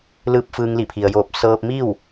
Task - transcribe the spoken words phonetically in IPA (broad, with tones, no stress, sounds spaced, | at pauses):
l ɯː˧ p̚ f ɯː˧ ŋ l i˧˩ pʰ i˩ ə̯ j oː˧˩ p̚ s ɤː˧ p̚ m i˥˨ w